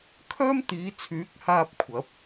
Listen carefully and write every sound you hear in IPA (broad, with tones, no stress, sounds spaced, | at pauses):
kʰ œː˥ m t̪ iː˨˧ t͡sʰ yː˨˥ k̚ h aː˧ p̚ kʷʰ ɐ˨˥ p̚